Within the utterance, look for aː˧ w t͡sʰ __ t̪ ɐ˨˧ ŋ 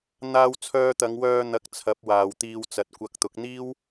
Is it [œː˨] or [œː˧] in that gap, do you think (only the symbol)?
œː˧